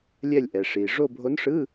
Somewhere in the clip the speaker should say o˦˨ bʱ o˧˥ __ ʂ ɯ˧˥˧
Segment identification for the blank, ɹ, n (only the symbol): n